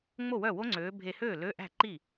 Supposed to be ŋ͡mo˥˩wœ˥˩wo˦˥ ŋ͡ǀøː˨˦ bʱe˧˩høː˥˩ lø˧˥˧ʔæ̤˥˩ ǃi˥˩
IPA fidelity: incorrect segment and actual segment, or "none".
none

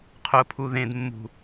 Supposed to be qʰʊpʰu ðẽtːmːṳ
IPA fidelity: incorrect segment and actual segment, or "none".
tː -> d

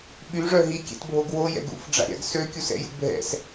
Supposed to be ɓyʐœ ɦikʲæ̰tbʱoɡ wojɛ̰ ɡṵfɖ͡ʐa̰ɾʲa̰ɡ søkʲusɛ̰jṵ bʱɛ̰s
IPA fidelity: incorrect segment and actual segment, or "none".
æ̰ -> ɛ̰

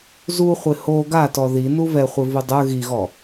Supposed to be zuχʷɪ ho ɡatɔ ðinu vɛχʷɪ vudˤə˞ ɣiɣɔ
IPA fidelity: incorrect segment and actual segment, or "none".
none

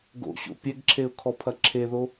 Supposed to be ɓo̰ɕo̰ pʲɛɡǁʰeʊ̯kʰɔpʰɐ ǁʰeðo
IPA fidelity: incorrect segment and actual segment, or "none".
ɓ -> ɡ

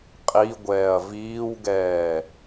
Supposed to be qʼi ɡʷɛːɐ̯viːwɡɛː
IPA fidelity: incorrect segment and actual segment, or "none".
none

